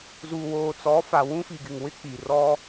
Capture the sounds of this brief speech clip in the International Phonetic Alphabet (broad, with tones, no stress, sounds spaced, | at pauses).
z u˨ w oː˨ t͡s ɔ˨˦ f a˨ w ũ˦ f i˨ ɡ ɪ˨ ŋ w ɪ˦ k͡p i˨ r ɔ˦